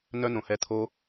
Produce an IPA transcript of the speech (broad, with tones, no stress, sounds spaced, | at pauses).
n œ˦ n õ˨ h ɛ˧ t̪ʰ o˦